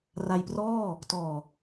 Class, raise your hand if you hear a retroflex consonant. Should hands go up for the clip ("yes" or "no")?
no